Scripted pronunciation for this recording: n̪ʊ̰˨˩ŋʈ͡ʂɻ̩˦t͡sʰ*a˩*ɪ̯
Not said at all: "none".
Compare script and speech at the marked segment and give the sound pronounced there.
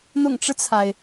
a˩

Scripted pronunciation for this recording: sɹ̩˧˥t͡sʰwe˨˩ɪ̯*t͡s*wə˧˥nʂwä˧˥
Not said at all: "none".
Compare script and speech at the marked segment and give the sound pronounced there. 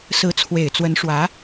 t͡s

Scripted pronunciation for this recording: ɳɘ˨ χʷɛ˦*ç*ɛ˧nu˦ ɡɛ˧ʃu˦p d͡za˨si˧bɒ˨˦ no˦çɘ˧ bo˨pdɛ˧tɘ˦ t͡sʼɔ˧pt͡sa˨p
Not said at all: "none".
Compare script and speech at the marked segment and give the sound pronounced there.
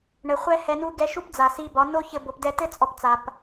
h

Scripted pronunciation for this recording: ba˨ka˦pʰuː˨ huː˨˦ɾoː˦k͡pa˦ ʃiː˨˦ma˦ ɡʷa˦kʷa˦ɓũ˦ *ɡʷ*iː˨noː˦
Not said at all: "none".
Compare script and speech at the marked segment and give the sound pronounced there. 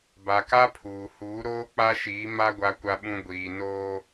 ɡʷ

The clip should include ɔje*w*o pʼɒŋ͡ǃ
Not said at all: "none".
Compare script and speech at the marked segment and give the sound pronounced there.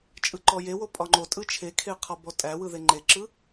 w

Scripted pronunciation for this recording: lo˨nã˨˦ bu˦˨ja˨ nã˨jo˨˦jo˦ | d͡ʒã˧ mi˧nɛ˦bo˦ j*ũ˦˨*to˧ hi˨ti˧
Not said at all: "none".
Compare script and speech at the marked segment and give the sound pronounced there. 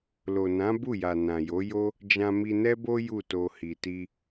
u˦˨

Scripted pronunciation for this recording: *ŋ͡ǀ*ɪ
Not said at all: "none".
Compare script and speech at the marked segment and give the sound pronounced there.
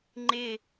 ŋ͡ǃ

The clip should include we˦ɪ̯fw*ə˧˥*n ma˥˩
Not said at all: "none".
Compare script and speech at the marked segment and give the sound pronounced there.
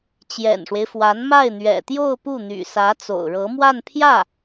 a˧˥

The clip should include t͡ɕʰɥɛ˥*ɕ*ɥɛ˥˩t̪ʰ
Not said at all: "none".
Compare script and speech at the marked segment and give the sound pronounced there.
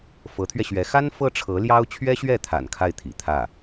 ɕ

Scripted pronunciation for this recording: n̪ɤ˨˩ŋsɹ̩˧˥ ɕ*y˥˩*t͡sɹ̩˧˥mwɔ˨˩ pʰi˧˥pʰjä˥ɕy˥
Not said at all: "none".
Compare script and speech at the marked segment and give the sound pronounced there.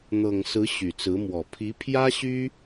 y˨˩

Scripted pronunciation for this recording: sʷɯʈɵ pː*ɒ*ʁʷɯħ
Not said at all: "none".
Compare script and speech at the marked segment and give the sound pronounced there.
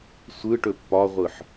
ɒ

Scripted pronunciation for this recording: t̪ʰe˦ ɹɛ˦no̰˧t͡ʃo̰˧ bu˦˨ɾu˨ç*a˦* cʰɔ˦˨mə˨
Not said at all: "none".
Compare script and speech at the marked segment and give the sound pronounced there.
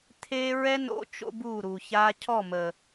a˦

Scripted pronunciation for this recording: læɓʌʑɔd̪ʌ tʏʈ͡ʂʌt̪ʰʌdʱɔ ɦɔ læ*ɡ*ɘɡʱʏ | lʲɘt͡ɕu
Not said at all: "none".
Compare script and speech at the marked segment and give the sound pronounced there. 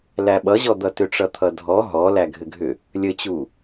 ɡʱ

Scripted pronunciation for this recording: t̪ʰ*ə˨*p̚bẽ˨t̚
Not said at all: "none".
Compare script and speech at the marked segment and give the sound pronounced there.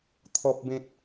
ɔ˨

